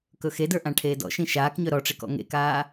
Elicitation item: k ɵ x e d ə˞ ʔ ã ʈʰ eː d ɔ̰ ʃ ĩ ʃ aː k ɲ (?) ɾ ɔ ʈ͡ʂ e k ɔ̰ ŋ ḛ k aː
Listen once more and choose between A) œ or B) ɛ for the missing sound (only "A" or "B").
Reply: A